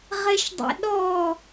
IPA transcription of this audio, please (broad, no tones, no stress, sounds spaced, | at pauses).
ʁ e ʃ dˤ ḛ ɗ ɔ